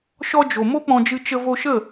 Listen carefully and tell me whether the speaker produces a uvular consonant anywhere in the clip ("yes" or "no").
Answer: no